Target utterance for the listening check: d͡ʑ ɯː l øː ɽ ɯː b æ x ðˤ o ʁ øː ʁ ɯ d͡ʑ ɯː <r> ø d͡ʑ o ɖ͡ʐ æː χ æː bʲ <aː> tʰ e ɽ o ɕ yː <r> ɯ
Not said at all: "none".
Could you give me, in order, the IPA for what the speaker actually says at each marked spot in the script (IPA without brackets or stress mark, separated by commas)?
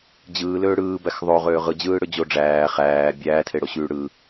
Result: ɽ, æː, ɽ